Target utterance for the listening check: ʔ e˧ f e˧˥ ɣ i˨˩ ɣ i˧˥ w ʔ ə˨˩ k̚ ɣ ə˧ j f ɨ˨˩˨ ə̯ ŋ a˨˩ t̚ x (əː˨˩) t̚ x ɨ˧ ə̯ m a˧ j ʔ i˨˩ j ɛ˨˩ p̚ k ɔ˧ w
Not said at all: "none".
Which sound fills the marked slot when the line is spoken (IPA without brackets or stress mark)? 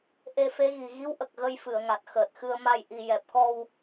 əː˨˩